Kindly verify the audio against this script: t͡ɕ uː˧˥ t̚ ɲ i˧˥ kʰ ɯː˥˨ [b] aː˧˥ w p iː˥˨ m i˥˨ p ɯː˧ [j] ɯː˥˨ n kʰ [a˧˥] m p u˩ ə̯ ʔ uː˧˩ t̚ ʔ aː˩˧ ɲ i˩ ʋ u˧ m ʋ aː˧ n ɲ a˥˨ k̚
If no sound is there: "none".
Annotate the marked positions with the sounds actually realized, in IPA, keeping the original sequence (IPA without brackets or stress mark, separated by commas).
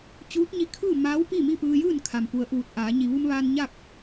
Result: m, j, a˩